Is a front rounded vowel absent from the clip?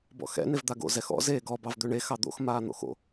no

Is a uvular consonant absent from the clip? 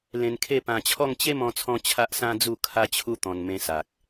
yes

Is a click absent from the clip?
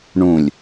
yes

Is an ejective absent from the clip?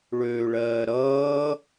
yes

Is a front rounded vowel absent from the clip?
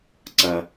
yes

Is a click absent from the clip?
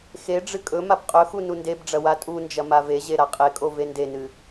yes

